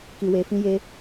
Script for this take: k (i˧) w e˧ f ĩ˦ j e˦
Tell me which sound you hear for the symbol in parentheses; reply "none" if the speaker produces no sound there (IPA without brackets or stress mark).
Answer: i˧